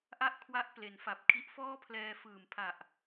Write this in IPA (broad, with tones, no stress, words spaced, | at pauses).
ʔa˥˩ʔkʰwa˦˥ʔ ple˩˦nfa˨˩p̚kʰi˦˥ʔ fɔː˥˩pʰlɛː˧fɯː˨˩mpʰa˨˩ʔ